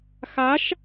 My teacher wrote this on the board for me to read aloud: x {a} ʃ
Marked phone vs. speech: correct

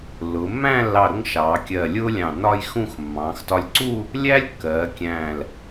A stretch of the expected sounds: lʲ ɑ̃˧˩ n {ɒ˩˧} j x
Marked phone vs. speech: incorrect: ɒ˥˧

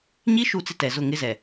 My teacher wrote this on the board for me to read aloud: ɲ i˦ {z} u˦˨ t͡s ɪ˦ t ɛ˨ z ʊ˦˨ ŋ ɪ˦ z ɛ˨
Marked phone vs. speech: incorrect: ʃ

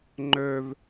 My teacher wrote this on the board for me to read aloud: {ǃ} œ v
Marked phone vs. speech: incorrect: ŋ͡ǃ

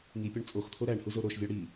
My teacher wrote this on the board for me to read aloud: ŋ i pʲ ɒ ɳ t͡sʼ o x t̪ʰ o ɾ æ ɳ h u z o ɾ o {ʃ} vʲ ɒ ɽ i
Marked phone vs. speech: correct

